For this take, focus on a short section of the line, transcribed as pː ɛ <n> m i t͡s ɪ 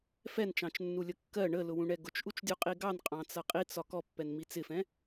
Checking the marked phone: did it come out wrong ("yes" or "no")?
no